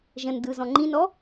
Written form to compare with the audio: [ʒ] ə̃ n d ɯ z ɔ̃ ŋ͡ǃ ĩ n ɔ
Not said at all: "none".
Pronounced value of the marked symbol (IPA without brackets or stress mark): ʒ